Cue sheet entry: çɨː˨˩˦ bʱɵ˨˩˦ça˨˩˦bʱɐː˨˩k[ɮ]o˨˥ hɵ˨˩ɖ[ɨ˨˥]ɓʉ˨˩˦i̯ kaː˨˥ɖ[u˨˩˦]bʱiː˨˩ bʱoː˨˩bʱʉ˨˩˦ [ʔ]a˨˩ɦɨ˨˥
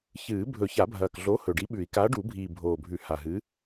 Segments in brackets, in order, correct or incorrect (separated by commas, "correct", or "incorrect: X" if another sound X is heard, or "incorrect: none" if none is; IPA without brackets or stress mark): correct, incorrect: i˨˥, correct, incorrect: h